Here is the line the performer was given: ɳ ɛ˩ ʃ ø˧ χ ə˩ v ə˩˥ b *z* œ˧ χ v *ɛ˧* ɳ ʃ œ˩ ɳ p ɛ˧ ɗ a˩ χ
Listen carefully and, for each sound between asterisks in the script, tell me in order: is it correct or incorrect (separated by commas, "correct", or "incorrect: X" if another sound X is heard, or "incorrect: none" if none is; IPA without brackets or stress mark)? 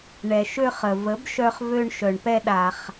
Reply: incorrect: ʃ, incorrect: ø˧